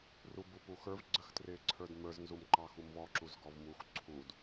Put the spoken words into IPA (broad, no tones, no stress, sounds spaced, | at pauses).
r u b u p u x ə˞ v ɡ͡ǀ ə x t r ɪː ǀʰ ə˞ d m ə˞ z n z u m ǃ ɑ x u m v ɔ ǁ u z ɡ ɔ v m u x ǀʰ u d